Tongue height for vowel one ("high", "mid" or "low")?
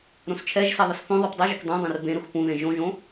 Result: mid